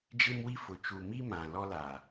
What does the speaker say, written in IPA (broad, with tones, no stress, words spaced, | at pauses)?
d͡ʒɪ˦mwi˦fʊ˨ t͡ʃu˨mi˦mã˨ lɔ˦la˨